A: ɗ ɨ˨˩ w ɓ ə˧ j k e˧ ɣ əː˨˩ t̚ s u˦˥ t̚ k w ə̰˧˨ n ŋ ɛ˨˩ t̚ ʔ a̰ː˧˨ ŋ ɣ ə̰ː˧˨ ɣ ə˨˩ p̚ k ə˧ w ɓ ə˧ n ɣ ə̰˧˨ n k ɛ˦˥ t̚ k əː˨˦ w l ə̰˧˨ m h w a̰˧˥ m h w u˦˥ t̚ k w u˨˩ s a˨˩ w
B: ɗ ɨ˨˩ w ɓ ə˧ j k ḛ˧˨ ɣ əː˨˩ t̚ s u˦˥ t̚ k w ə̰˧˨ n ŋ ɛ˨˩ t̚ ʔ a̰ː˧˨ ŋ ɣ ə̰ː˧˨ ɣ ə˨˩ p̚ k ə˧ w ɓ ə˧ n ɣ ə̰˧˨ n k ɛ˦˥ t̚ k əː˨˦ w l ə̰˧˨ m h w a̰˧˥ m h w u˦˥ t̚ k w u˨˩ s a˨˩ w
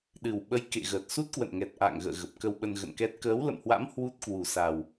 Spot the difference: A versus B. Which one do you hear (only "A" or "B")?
B